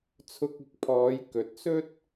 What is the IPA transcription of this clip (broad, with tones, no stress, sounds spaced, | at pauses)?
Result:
t͡sʰ ʊ˧ k̚ ɪ˨˥ k̚ pʰ ɔː˨˧ j k ɵ˨ t̚ s ɵ˥ t̚